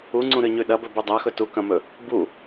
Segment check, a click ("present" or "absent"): present